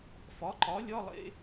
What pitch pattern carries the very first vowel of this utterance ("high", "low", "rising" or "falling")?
rising